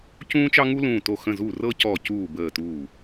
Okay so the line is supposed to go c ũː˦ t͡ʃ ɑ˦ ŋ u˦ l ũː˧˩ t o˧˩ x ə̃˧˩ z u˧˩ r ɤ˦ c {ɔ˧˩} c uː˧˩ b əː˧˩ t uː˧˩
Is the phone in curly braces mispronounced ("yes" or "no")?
no